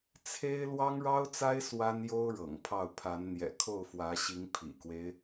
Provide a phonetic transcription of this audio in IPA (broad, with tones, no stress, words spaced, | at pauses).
t͡sʰe˥ɪ̯ lwɑ˥ŋɻɑ˥ʊ̯t͡sa˥ɪ̯ swa˥njo˥ʊ̯ ɻɤ̰˨˩ŋpʰɑ˥˩ʊ̯ pʰa˧˥nn̪jɛ̰˨˩ kʰo˥˩ʊ̯fwä˧˥ɕi˧˥ŋ pʰḭ˨˩kwe˦ɪ̯